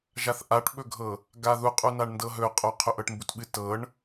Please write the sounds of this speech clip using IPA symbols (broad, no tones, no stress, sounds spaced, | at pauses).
ʒ a θ ʔ a ʈ ɓ ɵ ɡʱ ɤ | ɡ a ð u qʼ u n a ɳ n d ɤ ɦ ɵ qʼ o qʰ ɵ ʔ ɤ ʈ m b u t ɓ ɨ t ɤ ɳ